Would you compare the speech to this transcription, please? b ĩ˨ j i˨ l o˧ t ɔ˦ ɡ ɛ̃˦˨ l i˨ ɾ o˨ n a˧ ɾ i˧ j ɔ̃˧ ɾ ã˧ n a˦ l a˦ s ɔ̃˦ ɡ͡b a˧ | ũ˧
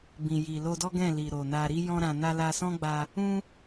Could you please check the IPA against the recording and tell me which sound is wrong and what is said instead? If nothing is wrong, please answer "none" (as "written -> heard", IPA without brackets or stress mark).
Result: t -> d